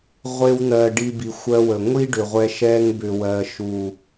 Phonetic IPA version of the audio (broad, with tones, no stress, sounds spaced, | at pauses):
ʁʷ e˧ w n̪ ɜ˨ ɖ i˧ b i˨ xʷ ɜ˧ w ə˨ ŋʷ i˦ ɖ ʏ˨ ʁʷ ɛ˧ ʃ ɛ˧ ŋ b ʏ˨ w ɜ˨ ʃ u˨